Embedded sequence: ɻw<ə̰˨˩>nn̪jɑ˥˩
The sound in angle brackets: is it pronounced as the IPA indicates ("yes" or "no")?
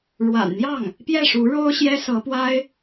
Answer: no